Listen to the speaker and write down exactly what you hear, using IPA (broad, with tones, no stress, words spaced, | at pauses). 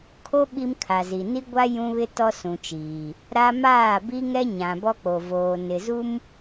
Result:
kʰo˦ ɓi˦mkʰa˨zi˨ ni˦ɡʷa˦ jũ˦βɪ˦ tɔ˦sũ˨t͡ʃiː˨ | ɾa˦ maː˦˨bi˦ŋɛ˦ ɲã˨bɔ˦k͡po˨voː˨ nɪ˨zu˦m